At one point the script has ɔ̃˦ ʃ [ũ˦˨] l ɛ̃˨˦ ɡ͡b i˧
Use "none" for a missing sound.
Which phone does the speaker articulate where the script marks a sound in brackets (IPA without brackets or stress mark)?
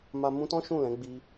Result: ũ˦˨